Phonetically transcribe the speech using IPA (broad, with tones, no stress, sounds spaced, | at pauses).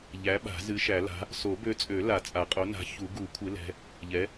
ʎ æ˨˥ ɓ a̤˨˩˦ z ɨ˨˥ ʃ æ˨˩˦ l a̤˨˥ | s o˨˩˦ b ø˨˥ t͡sʼ ø˨˩˦ l a˨˩˦ t͡sʼ a˨˩˦ qʼ o˨˥ n a̤˨˥ ç u˨˩˦ ɡ u˨˩˦ kʷʰ ɨ˨˥ l ɛ̤˨˥ | ʎ ɛ˨˥